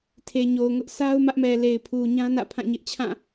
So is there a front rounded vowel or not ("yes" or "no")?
no